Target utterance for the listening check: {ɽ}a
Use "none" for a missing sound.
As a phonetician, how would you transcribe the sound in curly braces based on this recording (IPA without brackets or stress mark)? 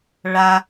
ɭ